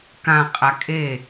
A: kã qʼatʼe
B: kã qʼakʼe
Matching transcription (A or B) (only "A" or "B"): B